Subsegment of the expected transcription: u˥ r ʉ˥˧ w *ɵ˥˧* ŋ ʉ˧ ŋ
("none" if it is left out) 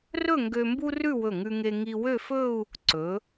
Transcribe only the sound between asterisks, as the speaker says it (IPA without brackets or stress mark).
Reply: ɵ˧˩